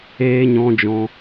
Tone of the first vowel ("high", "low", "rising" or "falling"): high